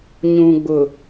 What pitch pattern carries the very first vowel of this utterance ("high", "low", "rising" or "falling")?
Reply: low